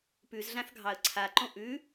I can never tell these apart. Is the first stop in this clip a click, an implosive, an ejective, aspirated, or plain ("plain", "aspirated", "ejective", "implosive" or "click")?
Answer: plain